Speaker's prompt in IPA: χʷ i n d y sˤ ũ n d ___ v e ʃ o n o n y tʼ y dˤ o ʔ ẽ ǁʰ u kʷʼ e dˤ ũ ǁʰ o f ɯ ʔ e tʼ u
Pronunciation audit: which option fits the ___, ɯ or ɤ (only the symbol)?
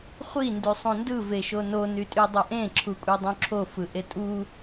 ɯ